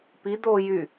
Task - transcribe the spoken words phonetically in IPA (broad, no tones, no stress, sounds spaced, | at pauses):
p i d̪ o j y